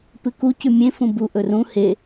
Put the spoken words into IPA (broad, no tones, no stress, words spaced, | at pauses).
pɨku cʉmʲẽ fũbu ʔɵrũ he